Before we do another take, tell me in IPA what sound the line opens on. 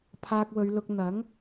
pʰ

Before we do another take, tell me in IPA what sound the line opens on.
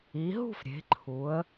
i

